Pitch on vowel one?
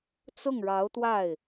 falling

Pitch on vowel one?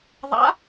rising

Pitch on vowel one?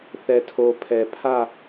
low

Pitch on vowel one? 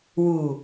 low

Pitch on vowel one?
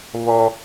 high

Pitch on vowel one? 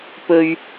low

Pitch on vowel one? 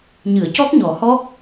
low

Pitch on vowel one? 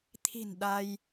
low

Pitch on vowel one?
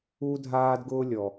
high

